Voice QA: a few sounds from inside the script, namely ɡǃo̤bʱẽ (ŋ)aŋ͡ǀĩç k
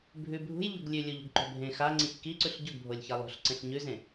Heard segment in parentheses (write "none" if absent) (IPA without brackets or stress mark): x